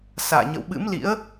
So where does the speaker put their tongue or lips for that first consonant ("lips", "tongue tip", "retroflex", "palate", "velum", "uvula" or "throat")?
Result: tongue tip